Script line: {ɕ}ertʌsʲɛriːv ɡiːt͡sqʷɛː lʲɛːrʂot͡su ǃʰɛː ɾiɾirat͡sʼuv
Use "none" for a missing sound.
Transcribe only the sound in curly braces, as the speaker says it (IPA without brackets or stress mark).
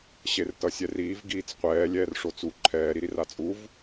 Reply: ɕ